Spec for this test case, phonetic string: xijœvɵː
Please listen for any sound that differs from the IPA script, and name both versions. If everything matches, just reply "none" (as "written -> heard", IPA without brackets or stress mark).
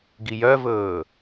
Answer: x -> ɡ